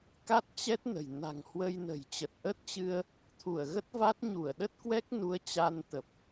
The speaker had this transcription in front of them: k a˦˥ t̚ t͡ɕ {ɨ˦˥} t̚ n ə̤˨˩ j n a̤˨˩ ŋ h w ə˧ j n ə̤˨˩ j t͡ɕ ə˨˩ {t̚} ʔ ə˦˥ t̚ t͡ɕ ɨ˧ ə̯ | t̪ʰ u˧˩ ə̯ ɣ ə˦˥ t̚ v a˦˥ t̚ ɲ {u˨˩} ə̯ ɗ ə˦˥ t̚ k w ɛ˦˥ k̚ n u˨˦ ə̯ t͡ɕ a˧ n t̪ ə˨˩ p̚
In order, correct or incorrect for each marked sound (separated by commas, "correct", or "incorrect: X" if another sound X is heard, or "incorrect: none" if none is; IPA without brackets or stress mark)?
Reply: incorrect: ɛ˦˥, correct, incorrect: u˧˩